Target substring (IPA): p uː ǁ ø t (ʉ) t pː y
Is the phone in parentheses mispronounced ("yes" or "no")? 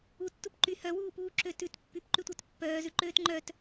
no